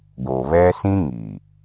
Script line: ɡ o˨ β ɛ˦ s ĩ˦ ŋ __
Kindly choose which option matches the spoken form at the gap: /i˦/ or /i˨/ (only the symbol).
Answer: i˨